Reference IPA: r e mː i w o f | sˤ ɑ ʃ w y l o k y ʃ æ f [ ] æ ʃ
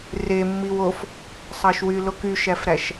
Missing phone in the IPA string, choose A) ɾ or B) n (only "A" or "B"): A